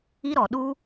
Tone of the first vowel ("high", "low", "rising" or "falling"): high